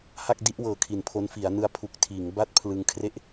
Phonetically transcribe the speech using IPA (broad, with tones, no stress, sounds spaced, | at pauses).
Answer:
h a˥˩ k̚ d i˥˩ ʔ w ɤː˨˩ kʰ i˨˩ n pʰ o˧ n f i˩˦ a̯ n ɯ˦˥ a̯ pʰ u˨˩ k̚ tʰ iː˩˦ ŋ b a˥˩ t̚ pʰ l ɯ˧ ŋ kʰ r e˥˩ ʔ